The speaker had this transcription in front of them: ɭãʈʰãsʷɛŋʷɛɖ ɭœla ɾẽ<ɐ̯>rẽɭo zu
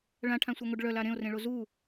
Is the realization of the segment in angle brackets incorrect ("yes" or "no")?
yes